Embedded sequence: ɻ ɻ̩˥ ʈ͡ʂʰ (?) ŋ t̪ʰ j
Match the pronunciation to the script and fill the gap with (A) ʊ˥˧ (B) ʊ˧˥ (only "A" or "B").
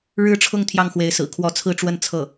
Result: A